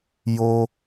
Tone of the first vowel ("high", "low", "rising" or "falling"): high